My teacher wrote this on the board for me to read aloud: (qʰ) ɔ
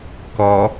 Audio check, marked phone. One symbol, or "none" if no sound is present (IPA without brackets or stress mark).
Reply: k